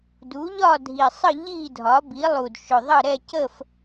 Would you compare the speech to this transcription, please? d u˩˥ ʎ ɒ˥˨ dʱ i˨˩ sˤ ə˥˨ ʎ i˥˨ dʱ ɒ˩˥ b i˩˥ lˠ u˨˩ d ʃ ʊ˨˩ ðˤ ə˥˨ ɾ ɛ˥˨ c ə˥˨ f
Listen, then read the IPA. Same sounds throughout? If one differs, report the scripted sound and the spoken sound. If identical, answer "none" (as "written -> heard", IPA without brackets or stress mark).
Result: none